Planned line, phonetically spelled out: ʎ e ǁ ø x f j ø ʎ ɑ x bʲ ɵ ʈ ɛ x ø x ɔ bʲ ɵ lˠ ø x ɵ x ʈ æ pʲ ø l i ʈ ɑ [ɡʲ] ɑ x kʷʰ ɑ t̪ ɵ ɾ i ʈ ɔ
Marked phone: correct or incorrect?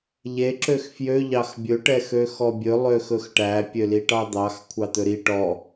incorrect